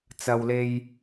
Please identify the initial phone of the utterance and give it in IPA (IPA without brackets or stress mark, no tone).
t͡s